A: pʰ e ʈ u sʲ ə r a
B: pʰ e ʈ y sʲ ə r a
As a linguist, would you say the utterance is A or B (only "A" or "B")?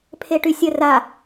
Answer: B